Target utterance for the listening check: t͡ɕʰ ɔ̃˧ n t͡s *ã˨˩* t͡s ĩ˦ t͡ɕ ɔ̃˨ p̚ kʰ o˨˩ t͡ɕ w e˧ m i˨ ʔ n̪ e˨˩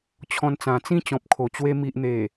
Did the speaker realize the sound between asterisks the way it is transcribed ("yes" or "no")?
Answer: yes